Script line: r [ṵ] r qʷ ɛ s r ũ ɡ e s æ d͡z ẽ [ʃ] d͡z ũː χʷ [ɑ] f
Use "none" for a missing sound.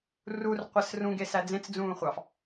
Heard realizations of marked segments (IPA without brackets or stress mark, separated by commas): u, t͡s, ɑ